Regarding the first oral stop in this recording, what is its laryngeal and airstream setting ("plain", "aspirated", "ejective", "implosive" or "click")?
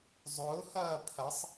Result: aspirated